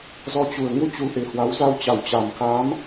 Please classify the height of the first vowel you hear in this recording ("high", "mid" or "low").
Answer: mid